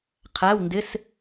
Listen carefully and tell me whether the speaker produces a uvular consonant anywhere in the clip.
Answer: yes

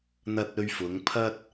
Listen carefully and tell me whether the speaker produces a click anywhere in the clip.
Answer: no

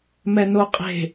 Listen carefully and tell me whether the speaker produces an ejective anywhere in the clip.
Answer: yes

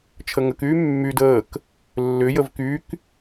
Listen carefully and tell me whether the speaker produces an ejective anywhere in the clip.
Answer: no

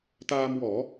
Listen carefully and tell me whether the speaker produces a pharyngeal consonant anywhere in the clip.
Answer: no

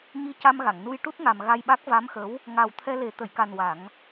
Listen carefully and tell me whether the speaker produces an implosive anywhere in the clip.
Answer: yes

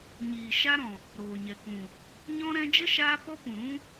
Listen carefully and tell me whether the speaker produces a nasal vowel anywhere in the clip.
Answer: yes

